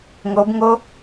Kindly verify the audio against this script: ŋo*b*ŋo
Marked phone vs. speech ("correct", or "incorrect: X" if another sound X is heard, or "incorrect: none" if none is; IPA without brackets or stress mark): correct